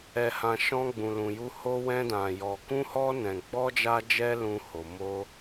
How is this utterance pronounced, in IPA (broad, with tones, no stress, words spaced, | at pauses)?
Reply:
ɛ˨hã˨ ʃɔ̃˧ɡ͡bũ˨lũ˨ju˧ ho˧wɛ̃˧dã˨jɔ˨ kũ˧hɔ˧ nɛ̃˨ ɡ͡bɔ˧d͡ʒa˧d͡ʒɛ˧ lũ˧ho˨ mo˧